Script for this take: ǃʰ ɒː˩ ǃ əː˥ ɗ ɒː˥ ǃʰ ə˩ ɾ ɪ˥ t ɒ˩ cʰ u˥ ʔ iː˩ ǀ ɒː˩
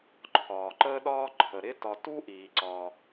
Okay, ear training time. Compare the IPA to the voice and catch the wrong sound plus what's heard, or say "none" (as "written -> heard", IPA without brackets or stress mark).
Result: cʰ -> t